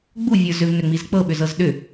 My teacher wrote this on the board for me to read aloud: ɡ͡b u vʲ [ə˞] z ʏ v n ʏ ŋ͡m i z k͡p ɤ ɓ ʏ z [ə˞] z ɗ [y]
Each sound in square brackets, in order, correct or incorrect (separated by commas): correct, incorrect, incorrect